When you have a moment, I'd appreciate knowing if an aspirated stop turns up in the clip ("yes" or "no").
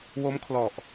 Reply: yes